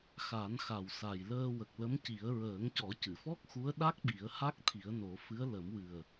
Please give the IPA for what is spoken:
xa˨˩˦nxa˨˩wsa˨˩jləː˧ wə˨˩k̚lə˧˥mci˨˩˦ə̯ ɹəː˨˩˦ŋcɔ˨˩˦cɨ˨˩˨fɔ˦˥k̚ xu˧˥ə̯ ɗa˦˥k̚ɓi˨˩˦ə̯ ha˦˥k̚t̪ʰi˨˩˦ə̯ no˨˩˦fɨ˧˥ə̯ lə˨˩˦m wɨ˨˩ə̯

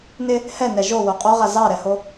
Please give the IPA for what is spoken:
nɪ | hɛnɛ ʒowo qʼoʁa zɑɾɛho

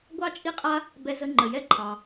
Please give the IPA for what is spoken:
ɡʷɑ˥t͡ʃʼi˥qʼa˥ | bɛ˦zə˦ ŋ͡ǃə˨jɛ˦ ǃʰɑ˨

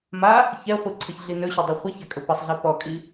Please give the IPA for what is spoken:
ma | çɛχʷiǀʰəçɮi nɵɕɛdˤɵ χʷəçakʼə pəsˤɮe pɔkʼi

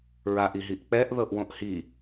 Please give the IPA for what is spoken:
ɹaʔiɦiʔ k͡pɛʔðɤʔwõʔ hi

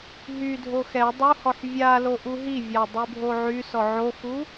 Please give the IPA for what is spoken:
ɦydʱo xɛ dˤuhɔħ vʲalo ʔuɦivʲa dˤybʱoʕysɔ ʕoxu

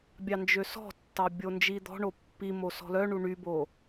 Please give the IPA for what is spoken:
bʲɑnd͡ʒøsɔ̤tːɑ bʲond͡ʒid̪ɔ̤ɳo pːimo sɔ̤lœɳu ɳybo

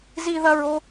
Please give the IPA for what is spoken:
zi˥ðɐ˥ɹo˥

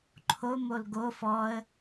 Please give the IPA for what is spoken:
ǃʰo molɡo fɔə̯

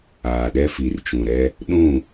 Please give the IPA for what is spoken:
aː˨ɗɛ˦fi˨rt͡ʃũ˨ ɾɛ˦ | ɗũ˦˨

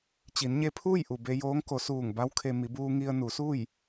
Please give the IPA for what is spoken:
t͡ɕi˩˧nɲe˧pʰuː˥˨j ʔu˩ be˧joː˧˥ŋko˩˧ suː˧˩ŋba˧˥w kʰe˧ mi˩˧buː˧ŋi˧ə̯ nu˩˧suː˥˨j

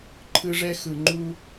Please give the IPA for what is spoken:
ǃʰɯ˦ ʐɛ˧xɯ˨ ŋ͡ǃu˦

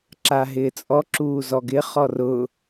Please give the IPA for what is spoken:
ǁaɦɪːt͡sʼɔ ǁuːzɔɡɪ χɔrʊ

